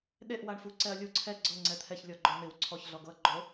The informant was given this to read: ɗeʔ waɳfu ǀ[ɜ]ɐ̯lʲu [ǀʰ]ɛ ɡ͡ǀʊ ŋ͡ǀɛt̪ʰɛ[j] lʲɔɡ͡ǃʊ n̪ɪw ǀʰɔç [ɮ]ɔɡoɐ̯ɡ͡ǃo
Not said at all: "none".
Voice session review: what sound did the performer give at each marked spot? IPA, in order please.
ɛ, ǀʰ, ç, ɮ

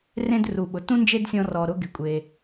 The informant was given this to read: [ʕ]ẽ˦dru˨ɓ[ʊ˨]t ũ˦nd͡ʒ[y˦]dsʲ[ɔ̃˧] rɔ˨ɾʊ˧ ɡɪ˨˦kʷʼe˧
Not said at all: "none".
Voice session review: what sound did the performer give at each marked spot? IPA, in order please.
r, ʊ˨, e˦, ɔ̃˧

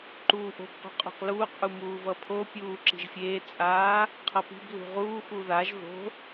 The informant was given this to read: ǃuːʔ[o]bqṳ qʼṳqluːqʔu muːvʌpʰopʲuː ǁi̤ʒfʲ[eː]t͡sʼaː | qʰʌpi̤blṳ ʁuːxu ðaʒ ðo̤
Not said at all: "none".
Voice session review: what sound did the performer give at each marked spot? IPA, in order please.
o̤, eː

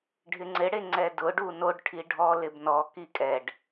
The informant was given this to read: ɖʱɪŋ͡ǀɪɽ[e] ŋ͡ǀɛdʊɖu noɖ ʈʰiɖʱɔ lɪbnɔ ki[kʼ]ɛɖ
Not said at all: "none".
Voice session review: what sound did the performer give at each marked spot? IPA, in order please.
e, kʼ

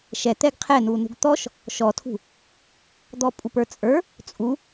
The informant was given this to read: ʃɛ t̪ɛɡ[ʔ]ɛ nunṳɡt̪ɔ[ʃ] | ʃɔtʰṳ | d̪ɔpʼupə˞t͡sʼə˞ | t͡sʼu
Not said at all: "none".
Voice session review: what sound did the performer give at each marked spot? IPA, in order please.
qʰ, ʃ

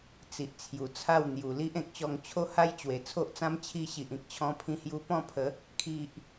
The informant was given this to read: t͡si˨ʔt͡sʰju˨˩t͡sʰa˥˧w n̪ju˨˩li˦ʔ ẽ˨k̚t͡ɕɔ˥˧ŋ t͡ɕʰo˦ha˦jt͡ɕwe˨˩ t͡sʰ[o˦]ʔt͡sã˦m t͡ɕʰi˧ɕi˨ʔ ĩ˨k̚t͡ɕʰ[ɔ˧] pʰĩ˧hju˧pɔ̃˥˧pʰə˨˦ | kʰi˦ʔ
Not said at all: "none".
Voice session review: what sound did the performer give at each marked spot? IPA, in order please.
o˦, ɔ̃˧

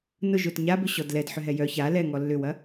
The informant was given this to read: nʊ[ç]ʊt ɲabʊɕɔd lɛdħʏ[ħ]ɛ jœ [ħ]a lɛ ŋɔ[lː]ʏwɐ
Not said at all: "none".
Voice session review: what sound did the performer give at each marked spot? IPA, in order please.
ʒ, ɦ, ç, lː

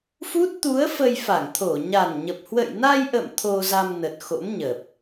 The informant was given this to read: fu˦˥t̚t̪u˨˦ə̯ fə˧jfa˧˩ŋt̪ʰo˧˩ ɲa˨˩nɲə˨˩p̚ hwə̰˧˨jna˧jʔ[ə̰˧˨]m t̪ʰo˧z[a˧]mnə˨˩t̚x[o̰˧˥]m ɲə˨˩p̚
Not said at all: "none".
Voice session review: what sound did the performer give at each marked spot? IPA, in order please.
ə̰˧˨, a˧, o̰˧˥

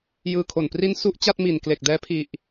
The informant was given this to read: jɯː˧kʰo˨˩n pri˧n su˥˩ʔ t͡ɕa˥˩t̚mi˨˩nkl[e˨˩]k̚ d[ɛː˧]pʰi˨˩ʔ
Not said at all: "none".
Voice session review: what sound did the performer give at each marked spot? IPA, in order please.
e˨˩, ɛː˧

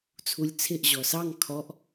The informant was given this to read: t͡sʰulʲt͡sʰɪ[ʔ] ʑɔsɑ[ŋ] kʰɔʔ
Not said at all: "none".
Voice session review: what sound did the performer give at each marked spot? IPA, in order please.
ʔ, ŋ

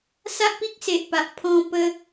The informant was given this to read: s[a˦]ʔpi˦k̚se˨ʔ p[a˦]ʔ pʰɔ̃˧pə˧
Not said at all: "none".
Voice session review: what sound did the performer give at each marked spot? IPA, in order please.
a˦, a˨

